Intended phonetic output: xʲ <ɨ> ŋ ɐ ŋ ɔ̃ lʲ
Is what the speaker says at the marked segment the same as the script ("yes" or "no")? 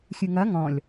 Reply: yes